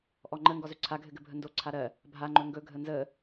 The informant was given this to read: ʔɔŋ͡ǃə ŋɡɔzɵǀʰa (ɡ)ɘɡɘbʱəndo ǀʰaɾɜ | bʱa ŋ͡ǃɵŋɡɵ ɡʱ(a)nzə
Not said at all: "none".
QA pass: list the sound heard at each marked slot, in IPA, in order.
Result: ɡʱ, ə

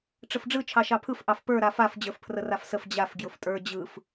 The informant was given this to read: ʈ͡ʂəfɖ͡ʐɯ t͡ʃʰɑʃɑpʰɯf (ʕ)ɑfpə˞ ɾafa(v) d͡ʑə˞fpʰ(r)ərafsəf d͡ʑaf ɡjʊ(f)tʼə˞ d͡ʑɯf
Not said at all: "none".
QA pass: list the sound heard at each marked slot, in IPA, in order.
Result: ʔ, f, r, f

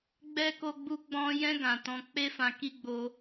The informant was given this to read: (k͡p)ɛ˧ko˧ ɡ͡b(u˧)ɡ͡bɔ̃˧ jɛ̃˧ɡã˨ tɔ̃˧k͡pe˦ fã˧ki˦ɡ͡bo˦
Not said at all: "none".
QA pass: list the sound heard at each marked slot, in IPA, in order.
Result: ɡ͡b, u˧

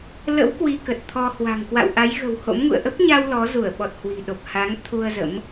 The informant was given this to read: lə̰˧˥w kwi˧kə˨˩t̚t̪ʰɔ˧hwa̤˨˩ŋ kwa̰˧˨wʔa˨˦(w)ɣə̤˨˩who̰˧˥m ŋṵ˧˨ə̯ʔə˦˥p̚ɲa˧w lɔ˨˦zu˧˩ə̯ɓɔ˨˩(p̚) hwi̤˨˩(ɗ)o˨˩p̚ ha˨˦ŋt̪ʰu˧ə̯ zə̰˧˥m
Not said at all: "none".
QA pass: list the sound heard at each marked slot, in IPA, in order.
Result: j, t̚, ɗ

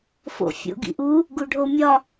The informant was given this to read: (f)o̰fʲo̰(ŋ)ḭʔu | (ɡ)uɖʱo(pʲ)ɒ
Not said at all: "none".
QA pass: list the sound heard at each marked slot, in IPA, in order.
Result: f, ɡ, ɡ, mʲ

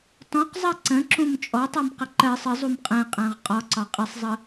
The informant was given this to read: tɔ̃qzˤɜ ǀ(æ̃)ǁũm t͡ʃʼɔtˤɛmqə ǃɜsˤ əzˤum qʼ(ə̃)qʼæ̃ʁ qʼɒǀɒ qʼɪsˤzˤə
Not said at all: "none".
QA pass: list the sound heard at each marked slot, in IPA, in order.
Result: ə̃, ɛ̃

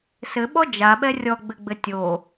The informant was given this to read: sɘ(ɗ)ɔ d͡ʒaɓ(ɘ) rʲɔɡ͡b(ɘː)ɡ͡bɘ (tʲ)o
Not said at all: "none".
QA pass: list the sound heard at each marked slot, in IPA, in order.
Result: ɓ, ɛ, ɘ, tʲ

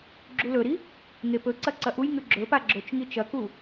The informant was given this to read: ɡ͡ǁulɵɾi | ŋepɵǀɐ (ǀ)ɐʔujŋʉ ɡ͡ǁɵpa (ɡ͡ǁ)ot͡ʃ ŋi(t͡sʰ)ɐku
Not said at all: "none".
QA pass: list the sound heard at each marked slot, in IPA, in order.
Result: ǀ, ɡ͡ǁ, t͡ʃ

